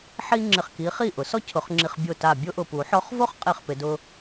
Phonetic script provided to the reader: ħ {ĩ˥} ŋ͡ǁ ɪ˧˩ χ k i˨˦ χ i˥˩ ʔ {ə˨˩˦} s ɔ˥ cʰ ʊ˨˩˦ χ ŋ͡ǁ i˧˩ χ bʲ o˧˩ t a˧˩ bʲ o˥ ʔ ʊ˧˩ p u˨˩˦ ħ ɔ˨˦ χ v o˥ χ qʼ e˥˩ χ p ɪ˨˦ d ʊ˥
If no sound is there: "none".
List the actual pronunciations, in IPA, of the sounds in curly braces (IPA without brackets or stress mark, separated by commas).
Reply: i˥, ʊ˨˩˦